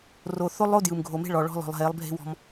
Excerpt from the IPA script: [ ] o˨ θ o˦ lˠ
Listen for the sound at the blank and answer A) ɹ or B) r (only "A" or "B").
B